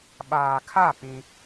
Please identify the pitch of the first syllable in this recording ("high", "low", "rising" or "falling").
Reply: low